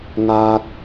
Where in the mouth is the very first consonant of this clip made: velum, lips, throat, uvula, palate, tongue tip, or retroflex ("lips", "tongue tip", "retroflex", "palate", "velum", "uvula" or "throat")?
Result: velum